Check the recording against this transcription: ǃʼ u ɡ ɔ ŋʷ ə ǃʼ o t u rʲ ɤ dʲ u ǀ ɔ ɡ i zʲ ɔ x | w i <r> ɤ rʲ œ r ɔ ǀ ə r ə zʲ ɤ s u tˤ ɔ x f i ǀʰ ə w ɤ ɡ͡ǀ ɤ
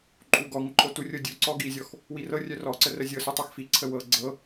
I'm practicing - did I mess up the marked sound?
no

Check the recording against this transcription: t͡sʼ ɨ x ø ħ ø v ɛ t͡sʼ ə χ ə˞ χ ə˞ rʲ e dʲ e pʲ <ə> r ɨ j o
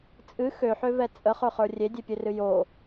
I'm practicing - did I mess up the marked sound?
yes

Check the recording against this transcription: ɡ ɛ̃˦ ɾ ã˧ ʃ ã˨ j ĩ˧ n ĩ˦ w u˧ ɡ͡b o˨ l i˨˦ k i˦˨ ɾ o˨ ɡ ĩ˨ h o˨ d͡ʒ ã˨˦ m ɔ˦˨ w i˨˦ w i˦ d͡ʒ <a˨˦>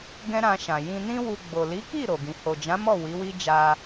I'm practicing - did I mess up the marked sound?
yes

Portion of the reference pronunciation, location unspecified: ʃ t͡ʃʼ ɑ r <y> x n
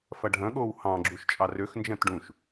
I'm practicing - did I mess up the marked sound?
yes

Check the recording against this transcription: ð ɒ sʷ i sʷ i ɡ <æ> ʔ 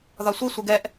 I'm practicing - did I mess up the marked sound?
yes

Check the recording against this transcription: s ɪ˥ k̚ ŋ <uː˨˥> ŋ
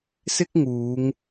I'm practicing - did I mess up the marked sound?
yes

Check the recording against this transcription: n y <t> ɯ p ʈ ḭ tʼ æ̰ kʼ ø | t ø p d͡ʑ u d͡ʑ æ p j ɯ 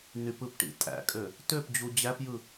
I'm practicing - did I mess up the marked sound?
yes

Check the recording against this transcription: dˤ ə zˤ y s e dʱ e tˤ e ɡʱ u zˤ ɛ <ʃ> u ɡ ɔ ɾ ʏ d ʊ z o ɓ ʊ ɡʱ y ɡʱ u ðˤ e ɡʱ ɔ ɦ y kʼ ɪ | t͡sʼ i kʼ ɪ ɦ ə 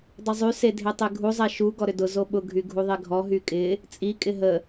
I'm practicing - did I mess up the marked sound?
no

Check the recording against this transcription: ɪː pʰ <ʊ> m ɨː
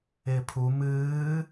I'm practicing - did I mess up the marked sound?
yes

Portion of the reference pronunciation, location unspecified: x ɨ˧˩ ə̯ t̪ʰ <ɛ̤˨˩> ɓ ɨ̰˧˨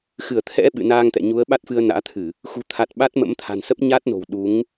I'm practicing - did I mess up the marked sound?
yes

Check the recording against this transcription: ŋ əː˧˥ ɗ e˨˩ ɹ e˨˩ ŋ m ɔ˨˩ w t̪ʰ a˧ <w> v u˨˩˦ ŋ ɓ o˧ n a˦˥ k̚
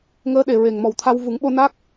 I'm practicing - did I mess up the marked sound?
no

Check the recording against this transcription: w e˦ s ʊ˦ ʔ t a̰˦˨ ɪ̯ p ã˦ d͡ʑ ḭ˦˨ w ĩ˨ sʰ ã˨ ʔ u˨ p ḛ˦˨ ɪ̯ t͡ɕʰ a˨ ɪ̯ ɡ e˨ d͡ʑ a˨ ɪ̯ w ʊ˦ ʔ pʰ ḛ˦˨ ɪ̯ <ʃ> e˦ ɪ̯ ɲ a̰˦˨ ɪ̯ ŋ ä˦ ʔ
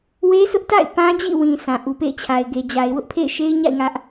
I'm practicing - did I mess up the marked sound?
no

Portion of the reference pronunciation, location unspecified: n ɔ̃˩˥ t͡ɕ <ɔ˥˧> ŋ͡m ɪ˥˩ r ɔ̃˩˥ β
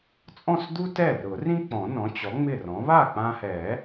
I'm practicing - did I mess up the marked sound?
yes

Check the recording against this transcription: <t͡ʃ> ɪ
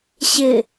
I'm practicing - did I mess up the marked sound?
yes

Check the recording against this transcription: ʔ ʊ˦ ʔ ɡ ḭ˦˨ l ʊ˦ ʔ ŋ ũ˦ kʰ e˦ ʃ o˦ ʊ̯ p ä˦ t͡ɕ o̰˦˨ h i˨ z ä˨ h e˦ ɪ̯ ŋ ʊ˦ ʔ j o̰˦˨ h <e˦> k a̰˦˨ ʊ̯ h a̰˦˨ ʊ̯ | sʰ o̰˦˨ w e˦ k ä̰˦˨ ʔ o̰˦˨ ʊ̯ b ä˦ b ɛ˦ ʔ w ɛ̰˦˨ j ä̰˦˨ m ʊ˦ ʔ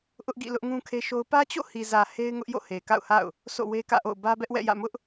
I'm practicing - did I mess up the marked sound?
yes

